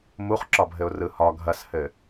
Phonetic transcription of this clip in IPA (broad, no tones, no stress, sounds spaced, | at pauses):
m u χ ǁ ɒ bʱ ɘ ʊ̯ r ɯ h ɒ ɡʱ ɐ s h ɘ